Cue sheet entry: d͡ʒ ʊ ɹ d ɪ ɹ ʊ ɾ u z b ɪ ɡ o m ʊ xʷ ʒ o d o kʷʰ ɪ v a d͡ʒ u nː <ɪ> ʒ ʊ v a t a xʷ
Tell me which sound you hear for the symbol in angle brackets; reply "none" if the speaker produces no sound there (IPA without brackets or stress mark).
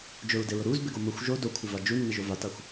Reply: ɪ